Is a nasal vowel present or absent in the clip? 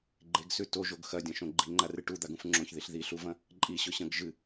present